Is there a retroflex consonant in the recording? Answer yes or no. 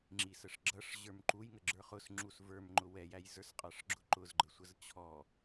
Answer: yes